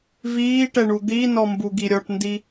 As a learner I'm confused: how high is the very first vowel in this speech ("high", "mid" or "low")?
high